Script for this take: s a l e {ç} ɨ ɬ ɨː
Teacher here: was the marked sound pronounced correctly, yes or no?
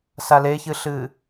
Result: yes